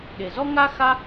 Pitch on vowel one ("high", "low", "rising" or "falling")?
low